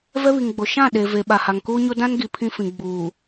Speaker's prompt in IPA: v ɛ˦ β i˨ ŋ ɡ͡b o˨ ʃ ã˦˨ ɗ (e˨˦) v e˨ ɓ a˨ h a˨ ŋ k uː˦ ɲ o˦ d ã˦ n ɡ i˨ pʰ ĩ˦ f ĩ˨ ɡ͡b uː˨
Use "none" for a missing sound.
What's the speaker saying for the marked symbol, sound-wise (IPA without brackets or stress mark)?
e˨